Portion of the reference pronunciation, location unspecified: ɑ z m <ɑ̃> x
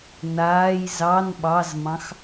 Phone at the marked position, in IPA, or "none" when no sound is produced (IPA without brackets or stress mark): ɑ̃